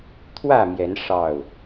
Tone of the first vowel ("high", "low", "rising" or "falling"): falling